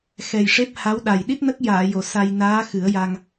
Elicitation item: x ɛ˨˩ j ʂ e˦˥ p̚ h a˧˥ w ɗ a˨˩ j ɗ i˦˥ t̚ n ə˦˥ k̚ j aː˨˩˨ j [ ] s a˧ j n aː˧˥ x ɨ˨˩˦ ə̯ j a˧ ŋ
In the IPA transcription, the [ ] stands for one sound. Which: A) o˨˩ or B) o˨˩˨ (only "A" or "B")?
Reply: B